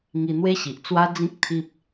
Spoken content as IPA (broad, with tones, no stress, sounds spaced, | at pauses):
ŋ i˧ n̪ w e˦ ɕ i˨ ʔ t͡s w a˦ d͡z ĩ˦ k̚ t̪ʰ i˦ p̚